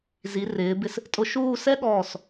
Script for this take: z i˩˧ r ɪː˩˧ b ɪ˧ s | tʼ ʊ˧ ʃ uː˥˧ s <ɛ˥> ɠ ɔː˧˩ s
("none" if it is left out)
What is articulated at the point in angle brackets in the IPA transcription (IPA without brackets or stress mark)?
ɛ˥